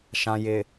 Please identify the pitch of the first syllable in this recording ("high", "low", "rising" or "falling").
low